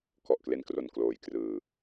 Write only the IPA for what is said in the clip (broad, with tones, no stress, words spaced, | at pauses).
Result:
kɔ˨˩ʔkle˧nkro˨˩n kloː˨˩jkrɯː˨˩